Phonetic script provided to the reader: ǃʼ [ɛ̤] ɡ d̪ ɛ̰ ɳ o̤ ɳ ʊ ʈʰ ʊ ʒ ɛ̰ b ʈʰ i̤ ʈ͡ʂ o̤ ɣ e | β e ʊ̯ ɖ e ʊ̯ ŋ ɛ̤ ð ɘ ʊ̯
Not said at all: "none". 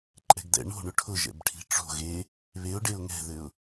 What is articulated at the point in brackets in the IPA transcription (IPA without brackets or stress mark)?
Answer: ɛ̤